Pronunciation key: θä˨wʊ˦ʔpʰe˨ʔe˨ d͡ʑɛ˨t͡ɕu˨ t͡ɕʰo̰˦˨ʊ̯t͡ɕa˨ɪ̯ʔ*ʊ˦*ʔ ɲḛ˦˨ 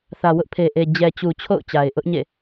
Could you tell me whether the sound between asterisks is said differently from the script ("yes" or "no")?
no